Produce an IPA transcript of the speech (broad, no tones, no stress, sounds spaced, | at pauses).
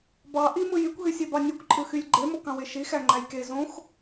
b ɑ ʔ i m ɯ j y kʷ ɦ y sʲ e b ɑ nʲ u kʷ ǃʼ ɯ x y lʲ ɡ͡ǃ e m o k ɑ̃ w e ʃ i x æ ŋ͡ǃ æ j k e z õ x